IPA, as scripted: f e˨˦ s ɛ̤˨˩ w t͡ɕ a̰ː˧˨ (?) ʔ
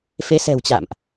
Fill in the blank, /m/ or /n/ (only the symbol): m